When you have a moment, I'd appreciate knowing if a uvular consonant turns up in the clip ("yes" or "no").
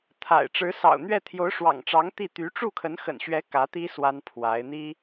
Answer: no